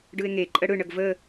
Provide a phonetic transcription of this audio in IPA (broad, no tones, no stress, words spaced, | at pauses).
ɖɯe̯ŋe ǃʼəɽɯ ɳəɡvə